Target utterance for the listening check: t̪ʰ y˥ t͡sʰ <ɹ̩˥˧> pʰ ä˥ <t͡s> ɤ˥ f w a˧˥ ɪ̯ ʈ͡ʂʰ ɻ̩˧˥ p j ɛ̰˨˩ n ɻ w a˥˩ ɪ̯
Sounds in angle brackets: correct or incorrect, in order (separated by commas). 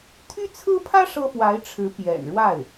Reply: incorrect, incorrect